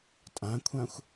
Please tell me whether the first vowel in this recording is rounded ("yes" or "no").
no